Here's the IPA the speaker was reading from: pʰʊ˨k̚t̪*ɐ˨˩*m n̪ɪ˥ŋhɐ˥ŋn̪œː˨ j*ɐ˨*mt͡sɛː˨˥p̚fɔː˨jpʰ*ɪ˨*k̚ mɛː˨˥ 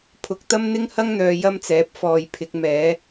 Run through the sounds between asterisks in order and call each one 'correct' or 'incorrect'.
incorrect: ɐ˥, incorrect: ɐ˥, incorrect: ɪ˨˥

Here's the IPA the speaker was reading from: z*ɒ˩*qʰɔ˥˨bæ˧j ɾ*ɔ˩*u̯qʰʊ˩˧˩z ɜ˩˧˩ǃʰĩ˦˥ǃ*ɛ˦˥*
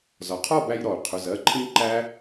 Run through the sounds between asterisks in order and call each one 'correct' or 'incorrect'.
correct, correct, incorrect: æ˦˥

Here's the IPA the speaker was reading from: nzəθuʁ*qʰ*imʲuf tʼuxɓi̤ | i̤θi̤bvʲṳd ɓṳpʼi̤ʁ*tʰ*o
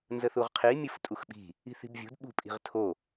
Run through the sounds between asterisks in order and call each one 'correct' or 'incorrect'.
correct, correct

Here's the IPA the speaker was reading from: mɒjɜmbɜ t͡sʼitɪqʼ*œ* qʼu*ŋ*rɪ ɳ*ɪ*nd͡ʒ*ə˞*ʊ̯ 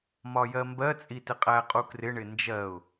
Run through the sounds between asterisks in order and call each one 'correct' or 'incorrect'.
incorrect: æ, incorrect: k, correct, incorrect: ɜ

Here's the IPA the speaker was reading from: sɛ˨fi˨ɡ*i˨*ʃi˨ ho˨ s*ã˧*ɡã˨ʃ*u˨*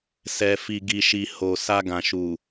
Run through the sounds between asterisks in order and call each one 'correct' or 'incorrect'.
correct, incorrect: a˧, correct

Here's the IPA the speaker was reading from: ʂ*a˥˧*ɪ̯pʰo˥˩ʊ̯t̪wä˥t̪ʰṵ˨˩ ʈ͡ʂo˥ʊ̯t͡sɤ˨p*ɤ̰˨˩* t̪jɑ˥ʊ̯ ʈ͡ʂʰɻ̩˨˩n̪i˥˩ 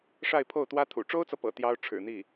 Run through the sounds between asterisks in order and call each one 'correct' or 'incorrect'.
correct, correct

